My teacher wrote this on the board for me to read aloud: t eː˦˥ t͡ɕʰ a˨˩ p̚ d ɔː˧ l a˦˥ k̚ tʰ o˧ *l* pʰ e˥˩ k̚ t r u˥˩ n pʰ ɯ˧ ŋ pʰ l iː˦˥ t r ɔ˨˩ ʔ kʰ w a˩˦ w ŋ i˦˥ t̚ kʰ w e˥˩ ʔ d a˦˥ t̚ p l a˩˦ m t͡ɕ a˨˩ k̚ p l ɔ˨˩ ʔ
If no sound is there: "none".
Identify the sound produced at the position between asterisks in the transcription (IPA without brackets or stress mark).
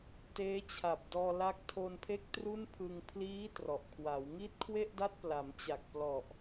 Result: n